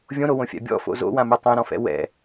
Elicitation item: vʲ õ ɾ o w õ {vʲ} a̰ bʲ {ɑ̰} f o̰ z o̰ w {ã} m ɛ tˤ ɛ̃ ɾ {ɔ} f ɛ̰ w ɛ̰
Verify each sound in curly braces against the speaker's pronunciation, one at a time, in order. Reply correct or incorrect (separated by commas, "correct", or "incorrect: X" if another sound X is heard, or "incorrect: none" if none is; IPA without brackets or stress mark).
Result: incorrect: fʲ, incorrect: ɔ̰, correct, incorrect: ɔ̃